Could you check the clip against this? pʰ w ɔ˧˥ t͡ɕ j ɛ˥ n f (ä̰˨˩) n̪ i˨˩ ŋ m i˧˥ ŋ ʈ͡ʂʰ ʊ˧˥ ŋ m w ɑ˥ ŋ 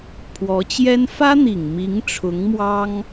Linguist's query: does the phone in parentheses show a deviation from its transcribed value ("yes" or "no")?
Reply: yes